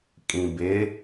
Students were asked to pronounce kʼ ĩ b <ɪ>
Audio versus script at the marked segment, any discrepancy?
no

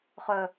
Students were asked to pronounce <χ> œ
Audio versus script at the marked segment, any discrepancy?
no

